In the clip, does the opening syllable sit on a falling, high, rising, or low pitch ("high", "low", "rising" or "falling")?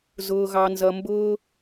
low